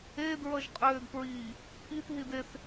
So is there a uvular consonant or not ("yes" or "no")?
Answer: yes